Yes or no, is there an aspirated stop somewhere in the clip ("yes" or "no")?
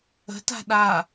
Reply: no